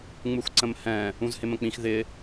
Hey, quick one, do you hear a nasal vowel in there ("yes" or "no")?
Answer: yes